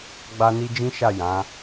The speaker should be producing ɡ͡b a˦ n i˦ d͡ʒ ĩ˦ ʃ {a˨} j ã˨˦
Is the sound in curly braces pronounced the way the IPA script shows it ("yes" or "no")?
no